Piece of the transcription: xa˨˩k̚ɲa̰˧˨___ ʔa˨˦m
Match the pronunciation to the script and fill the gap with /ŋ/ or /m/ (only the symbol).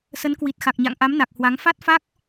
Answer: ŋ